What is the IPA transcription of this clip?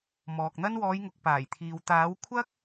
mɔː˨k̚n̪ɐ˥n wɔː˨˧jŋʊ˨k̚ paː˨˩jt̪ʰiː˨w t̪aː˨˥wkʷʰɐ˥k̚

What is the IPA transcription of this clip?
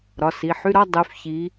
ɾɒ˩˧˩si˩˧˩ħy˧˥˧ɾɒ˧˥˧ dˤy˨˦fçi˨˦

